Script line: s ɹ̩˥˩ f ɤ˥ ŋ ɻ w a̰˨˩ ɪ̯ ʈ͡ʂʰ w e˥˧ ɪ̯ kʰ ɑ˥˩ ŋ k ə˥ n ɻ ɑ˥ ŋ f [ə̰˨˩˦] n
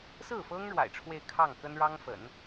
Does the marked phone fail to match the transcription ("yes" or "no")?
no